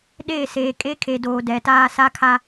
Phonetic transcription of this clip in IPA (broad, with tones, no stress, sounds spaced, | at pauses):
ɗ eː˦˨ s eː˨ kʼ e˦ kʰ e˨ d oː˨ d ɛ˨ t aː˦ s a˦ kʰ a˦